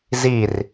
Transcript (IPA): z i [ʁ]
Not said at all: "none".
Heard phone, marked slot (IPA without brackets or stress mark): r